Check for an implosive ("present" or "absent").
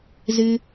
absent